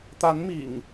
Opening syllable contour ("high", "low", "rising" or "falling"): rising